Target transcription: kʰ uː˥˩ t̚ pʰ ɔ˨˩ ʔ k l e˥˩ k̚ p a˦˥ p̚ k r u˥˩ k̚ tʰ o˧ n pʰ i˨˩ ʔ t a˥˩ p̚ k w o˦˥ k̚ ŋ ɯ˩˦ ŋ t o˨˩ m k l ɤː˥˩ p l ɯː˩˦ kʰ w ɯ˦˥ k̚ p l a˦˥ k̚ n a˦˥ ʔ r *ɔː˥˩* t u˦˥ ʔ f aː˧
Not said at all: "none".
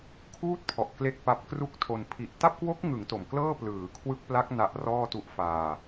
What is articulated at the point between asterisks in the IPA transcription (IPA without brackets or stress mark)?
ɔː˥˩